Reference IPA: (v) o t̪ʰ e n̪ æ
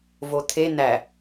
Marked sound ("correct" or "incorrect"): correct